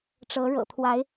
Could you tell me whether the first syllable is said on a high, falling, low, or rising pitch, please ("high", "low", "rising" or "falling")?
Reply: rising